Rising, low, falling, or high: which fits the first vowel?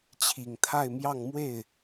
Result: low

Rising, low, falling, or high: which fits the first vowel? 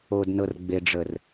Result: low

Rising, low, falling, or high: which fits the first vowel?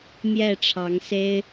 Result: falling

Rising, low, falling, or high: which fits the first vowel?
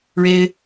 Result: high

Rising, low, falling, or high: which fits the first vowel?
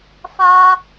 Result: high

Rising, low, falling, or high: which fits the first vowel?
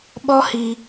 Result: high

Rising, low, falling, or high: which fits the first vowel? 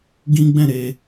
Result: high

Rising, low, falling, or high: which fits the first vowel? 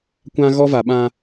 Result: high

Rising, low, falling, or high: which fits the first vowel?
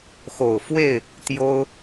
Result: low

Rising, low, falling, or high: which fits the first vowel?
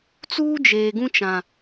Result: high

